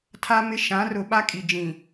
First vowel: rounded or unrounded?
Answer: unrounded